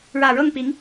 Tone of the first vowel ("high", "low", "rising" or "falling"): low